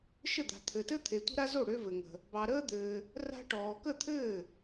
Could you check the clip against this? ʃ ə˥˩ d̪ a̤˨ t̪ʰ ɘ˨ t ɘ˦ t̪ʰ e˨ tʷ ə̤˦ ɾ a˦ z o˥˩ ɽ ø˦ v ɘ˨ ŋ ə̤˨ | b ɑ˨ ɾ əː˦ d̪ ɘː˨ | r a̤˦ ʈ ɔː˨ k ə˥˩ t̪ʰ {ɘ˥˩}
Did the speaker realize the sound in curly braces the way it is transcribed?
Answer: no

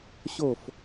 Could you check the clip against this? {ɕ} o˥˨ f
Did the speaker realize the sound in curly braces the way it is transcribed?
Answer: yes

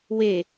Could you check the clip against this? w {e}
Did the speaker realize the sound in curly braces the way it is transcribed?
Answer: yes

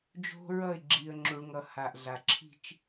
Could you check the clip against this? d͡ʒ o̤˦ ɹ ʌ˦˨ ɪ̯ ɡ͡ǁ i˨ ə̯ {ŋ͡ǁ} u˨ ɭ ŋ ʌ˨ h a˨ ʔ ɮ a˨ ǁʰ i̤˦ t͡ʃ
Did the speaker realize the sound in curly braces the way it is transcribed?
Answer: yes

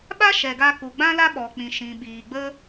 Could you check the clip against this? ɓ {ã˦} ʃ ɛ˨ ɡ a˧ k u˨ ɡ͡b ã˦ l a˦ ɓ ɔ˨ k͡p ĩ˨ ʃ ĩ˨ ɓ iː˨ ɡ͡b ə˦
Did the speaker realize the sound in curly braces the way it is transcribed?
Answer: no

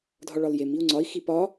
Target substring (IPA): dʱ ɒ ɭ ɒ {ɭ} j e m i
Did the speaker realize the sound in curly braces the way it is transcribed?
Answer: no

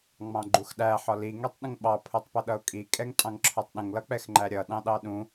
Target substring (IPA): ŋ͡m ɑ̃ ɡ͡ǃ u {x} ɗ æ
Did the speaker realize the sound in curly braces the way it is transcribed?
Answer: yes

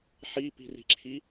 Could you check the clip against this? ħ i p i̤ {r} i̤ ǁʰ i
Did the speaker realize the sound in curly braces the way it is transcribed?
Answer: yes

